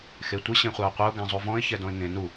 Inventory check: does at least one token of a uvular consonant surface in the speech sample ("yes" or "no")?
yes